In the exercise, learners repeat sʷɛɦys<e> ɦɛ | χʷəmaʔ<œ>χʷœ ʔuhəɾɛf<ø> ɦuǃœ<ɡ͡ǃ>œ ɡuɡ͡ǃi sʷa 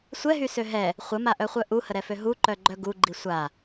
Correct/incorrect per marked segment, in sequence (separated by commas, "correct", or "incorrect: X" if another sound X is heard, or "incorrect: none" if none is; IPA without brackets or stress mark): incorrect: ø, correct, correct, correct